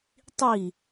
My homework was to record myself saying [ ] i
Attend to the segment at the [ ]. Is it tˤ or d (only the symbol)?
tˤ